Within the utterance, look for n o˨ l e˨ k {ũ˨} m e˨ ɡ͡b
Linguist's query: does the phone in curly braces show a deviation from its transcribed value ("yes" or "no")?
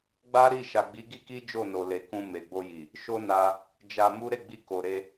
yes